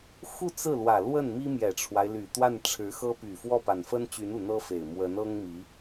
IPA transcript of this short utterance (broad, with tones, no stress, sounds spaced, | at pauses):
x u˥˧ t͡s ɹ̩˥˩ l w ä˨˩ l w ə˥˩ n m i˥ m j ɛ˨˩ ʈ͡ʂʰ w a˦ ɪ̯ l y˨˩ t̪ w a˥˩ n ʈ͡ʂʰ ɻ̩˧˥ x ɤ˥ p y˨˩ f w ɔ˥˩ p a˨˩ n f ə˥ n t͡ɕ y˧˥ n u˨˩ n̪ ɤ˥ f e˨˩ ɪ̯ m w ə˧˥ n ɤ˥ ŋ m i˧˥